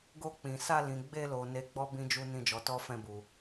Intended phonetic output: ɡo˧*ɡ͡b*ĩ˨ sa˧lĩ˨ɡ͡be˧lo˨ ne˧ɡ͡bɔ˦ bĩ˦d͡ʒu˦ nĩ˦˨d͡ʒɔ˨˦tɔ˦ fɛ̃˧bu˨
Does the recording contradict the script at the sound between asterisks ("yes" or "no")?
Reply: yes